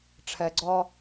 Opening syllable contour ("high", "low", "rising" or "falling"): low